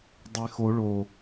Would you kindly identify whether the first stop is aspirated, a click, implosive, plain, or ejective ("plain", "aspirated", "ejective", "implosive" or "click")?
plain